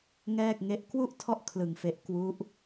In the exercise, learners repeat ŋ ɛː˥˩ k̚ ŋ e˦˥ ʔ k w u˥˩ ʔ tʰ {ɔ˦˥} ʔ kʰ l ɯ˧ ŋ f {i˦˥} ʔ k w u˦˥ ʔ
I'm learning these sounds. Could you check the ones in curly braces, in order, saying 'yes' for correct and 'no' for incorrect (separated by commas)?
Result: no, no